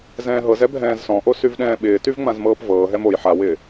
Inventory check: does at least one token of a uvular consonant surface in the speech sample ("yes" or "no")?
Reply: no